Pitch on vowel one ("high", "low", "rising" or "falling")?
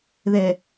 low